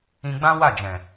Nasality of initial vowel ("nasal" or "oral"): nasal